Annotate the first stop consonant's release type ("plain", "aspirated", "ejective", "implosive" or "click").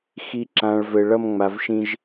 click